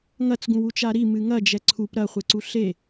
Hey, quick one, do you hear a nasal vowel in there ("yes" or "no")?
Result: yes